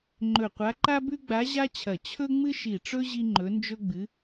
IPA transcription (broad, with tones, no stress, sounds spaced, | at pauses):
ŋ͡ǃ ɵ˧˩ qʷ a˧˥ ǃ a˥ b ʉ˥ ɡ͡b a˧˥ ʑ a˥ t͡ɕʰ ɐ˧˩ t͡ɕʰ ɵ˥ ŋ͡m ɨ˥ ʃ i˧˩ ʈ͡ʂ ɵ˥ ʑ i˥ ŋ͡ǃ ɵ˧˥ n d͡ʒ ɵ˥ ɡ͡b ɨ˧˥